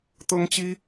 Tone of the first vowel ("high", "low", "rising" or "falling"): high